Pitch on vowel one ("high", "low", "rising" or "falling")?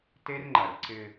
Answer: high